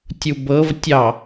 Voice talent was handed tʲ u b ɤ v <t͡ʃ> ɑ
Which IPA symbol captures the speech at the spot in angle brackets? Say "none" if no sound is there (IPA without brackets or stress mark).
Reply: tʲ